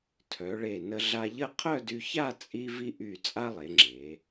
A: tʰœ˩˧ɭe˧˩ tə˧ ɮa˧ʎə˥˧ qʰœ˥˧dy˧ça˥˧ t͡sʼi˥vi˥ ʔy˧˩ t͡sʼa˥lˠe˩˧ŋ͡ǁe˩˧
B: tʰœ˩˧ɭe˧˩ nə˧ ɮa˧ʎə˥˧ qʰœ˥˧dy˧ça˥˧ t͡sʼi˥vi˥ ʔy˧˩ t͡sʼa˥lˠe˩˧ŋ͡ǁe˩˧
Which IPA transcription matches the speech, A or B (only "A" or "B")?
B